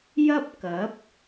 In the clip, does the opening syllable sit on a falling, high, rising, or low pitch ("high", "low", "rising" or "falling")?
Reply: high